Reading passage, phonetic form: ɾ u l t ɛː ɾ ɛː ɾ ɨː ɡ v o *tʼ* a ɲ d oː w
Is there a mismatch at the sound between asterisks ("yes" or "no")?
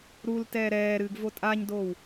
no